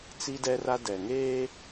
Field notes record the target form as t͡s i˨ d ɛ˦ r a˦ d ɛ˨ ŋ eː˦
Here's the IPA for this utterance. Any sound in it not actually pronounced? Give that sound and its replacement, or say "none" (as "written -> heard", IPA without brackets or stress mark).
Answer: i˨ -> i˦